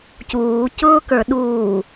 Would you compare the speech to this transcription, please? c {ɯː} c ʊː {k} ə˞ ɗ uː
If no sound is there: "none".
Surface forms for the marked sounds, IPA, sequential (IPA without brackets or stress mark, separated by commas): uː, k